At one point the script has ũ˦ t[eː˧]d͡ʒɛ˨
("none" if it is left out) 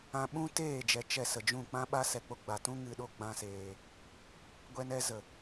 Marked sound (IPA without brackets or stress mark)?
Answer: eː˦˨